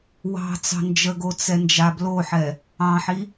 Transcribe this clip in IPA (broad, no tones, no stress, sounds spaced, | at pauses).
w ɑ̤ t͡s ɑ̤ n d͡ʒ ə ɡ o t͡s ɛ n d͡ʒ a b l o ħ ɛ | ɑ̃ ħ i